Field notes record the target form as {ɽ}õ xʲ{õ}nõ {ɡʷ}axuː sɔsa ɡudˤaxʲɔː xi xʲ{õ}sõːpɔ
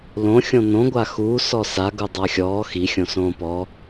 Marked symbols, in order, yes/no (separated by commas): no, yes, yes, yes